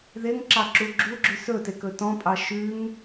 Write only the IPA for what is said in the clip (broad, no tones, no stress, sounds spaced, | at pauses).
ð e ŋ ǁ ɑ ǁ u ɡ͡ǁ u ɡ͡ǁ ʉ s ɵ t e k ɵ t ɔ̃ pʼ ɑ ʃ ʉ ŋ